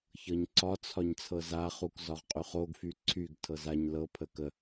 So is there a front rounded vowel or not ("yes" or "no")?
yes